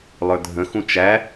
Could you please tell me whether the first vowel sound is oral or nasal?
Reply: oral